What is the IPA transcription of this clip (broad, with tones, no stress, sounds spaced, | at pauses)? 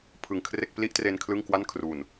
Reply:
pʰ ɯ˨˩ ŋ kʰ r e˥˩ k̚ p l i˥˩ ʔ t r e˧ n kʰ l ɯ˥˩ ŋ k w a˥˩ n kʰ r u˨˩ n